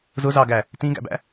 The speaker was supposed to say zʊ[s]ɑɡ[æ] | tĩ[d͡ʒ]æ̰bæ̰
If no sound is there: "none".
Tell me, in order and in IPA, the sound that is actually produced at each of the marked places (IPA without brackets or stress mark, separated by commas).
z, æ, ɡ